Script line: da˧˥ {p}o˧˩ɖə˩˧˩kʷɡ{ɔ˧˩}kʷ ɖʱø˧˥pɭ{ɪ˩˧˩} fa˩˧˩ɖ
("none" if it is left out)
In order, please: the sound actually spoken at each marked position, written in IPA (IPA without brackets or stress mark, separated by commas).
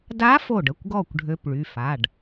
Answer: f, ɔ˧˩, y˩˧˩